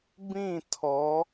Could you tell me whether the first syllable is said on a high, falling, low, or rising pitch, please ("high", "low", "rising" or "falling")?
falling